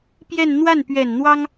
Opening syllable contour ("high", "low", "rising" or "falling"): falling